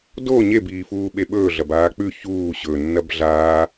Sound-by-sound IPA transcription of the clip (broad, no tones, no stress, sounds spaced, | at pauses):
d o ɲ e b iː f uː ɓ e ɓ ɵː ɮ ɐ b aː k͡p ʉ ç uː ɕ ɵ nː ɐ b ɮ aː